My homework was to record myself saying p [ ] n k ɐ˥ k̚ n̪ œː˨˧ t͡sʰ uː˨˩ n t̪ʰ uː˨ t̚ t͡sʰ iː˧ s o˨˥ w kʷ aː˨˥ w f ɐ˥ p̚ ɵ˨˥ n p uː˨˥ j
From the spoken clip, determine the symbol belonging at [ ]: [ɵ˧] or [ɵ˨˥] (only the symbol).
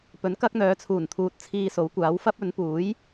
ɵ˨˥